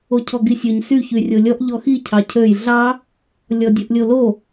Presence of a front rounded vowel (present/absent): present